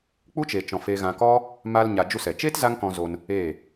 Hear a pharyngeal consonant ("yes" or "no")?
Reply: no